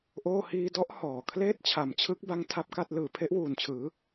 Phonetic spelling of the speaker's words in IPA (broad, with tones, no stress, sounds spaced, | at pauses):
ʔ oː˥˩ h iː˧ d ɔ˦˥ ʔ h ɔː˨˩ kʰ l eː˥˩ t̚ t͡ɕʰ a˨˩ m t͡ɕʰ ɯ˦˥ k̚ b a˦˥ ŋ tʰ a˦˥ p̚ k a˥˩ t̚ l ɯː˨˩ pʰ e˦˥ ʔ w uː˨˩ n t͡ɕʰ ɯː˩˦